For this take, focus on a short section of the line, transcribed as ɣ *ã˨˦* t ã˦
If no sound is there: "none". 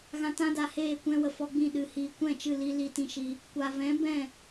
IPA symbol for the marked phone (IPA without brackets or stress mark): ã˧